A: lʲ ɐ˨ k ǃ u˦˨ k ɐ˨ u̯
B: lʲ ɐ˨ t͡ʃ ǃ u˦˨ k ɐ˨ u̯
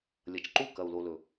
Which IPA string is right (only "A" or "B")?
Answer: B